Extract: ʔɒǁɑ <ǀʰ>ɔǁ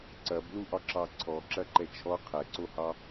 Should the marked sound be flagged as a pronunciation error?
no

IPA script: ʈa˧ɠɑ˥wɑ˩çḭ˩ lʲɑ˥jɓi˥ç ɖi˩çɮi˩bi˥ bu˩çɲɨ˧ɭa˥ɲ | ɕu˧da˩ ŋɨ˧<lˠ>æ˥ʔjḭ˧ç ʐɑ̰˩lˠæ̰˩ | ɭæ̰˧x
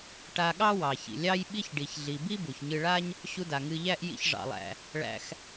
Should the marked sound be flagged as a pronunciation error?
yes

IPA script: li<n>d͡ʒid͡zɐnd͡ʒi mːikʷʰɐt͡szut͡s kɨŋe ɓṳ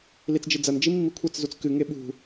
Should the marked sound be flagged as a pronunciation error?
yes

